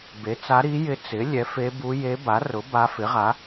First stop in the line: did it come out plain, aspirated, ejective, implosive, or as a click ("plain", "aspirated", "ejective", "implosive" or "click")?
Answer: plain